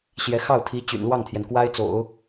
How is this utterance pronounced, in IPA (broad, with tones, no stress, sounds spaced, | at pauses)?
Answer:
ɕ j ɛ˧˥ x ɑ˥˩ ʊ̯ t̪ʰ i˧˥ t͡ɕ y̰˨˩ n l w ɑ˥˩ ŋ t̪ʰ j ɛ˩ n k w a˥ ɪ̯ t͡s o̰˨˩˦ ʊ̯